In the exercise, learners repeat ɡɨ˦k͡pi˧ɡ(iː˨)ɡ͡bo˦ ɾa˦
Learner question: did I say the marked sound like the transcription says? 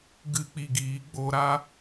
no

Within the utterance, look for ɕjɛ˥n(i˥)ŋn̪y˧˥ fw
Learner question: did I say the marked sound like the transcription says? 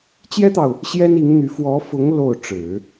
no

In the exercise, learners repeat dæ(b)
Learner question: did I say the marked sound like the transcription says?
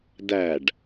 no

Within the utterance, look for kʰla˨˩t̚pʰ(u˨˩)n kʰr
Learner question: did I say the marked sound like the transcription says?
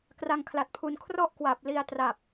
no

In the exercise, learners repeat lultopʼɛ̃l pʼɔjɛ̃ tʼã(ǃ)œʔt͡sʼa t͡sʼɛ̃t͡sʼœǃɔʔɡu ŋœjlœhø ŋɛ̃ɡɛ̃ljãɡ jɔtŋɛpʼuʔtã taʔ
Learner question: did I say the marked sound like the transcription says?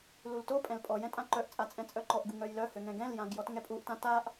yes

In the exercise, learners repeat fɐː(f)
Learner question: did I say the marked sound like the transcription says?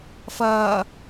no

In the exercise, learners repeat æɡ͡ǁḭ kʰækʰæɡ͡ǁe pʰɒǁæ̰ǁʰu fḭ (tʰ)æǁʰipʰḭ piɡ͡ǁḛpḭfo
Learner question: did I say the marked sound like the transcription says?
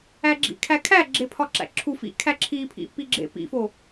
no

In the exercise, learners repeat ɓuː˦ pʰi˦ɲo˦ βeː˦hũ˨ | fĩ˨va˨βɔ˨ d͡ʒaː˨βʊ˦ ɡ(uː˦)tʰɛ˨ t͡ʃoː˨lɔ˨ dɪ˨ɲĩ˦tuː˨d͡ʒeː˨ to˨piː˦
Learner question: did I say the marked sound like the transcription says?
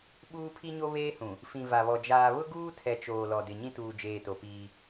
yes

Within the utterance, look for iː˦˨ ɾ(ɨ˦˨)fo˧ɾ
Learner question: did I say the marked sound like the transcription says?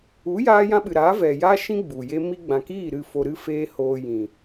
yes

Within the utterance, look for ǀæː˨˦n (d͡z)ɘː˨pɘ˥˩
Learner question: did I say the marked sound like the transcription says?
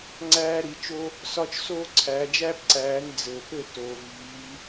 yes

